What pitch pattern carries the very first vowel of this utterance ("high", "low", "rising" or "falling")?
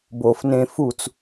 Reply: low